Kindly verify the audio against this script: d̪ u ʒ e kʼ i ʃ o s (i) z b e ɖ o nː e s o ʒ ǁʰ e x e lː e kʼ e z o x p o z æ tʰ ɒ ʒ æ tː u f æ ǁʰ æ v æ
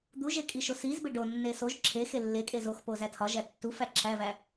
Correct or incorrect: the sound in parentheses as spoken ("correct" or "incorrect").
correct